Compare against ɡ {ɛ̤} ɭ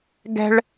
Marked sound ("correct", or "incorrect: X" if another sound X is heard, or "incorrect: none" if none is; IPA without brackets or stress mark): correct